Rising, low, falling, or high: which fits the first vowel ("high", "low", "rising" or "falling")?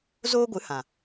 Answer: high